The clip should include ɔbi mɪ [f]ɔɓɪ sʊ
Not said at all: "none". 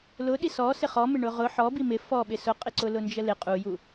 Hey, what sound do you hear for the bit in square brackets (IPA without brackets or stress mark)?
f